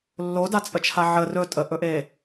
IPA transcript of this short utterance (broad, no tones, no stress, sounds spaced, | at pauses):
lː o d a t͡sʼ ə t͡ʃʰ a ʕ ə r ɵ tʼ ə ʔ ɵ ʔ e